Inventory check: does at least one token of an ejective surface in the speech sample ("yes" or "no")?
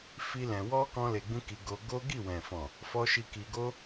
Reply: no